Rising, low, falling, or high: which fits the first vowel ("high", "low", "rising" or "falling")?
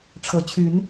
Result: rising